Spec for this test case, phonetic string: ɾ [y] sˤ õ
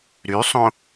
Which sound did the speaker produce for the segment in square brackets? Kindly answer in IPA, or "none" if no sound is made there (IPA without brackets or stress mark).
y